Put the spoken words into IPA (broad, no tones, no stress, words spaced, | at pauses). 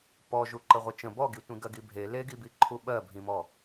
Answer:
pɔʒu ǃəʁʷət͡ʃə̃ bɔɡitʷĩɡɜ ɡibʱe leɡibiǃʰu ɓɜbʱĩmɔ